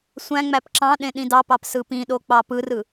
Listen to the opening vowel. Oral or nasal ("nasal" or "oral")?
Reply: nasal